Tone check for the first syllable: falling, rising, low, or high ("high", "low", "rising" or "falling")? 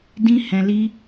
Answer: high